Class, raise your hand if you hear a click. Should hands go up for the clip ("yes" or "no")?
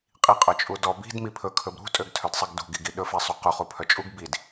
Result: no